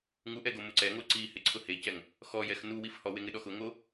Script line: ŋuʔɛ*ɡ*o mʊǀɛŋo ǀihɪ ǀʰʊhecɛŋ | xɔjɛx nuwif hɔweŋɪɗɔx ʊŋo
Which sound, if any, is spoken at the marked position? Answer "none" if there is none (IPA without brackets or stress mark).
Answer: ɡ